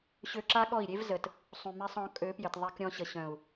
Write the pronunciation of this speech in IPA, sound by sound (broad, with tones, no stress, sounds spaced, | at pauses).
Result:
ɕ ø˧ ǁ a˦ ɠ ɔ˦˨ i̯ ɾʲ e˦ v z ə˨ t | sˤ ũ˨ m e˧ sˤ ɔ̃˨˦ kʼ ø˨˦ p j ɘ˨ t ðˤ e˧ k ɾʲ ɔ̃˧ ɕ ə˨ ɕ œ̃˨ u̯